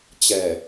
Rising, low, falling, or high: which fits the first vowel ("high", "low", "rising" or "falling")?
low